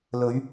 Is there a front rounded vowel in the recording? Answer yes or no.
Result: no